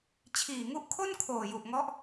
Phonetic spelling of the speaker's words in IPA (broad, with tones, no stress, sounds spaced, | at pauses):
t͡ɕʰ iː˨˩ ŋ u˦˥ ʔ kʰ o˥˩ n kʰ oː˨˩ j u˨˩ ʔ ŋ ɔ˦˥ ʔ